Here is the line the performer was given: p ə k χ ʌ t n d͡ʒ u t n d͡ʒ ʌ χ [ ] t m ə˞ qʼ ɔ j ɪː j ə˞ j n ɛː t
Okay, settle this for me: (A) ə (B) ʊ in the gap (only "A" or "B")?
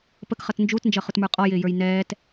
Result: B